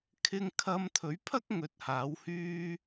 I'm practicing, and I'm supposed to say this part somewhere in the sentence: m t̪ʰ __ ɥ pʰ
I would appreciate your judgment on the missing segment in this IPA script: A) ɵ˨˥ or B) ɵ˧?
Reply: A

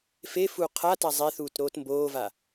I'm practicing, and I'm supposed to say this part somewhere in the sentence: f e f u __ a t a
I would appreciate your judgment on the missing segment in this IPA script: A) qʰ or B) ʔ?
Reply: A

